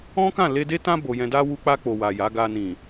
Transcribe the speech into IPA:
ɔ̃˦ k ã˦˨ l e˧ d e˦ t ã˦ b o˧ j ɛ̃˧ d a˦ w u˧ k͡p a˧ k͡p o˨ w a˨ j a˨˦ ɡ a˧ n ĩ˨

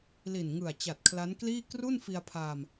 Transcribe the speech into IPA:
l i˨˩ n ŋ ɯ˨˩ a̯ t͡ɕ a˨˩ t̚ kʰ l a˦˥ n k l iː˥˩ k r u˥˩ n f i˧ a̯ pʰ aː˧ m

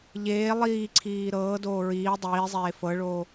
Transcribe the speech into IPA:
ʎ eː lˠ iː ǀʰ iː ɾ ɤː d oː ɹ iː dˤ iː zˤ eː f ɤ ɭ oː

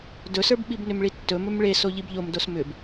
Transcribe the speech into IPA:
d ɵ s ə˞ b ɓ i b n ʏ m ɭ i tː ɵ m ɵ m ɭ e s o ʎ i b ʎ o m d o s m ʏ b

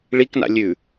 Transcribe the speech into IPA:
ɭ i k n a̰ lʲ ʉ

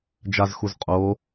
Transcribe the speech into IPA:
d͡ʒ a z x u z qʼ o

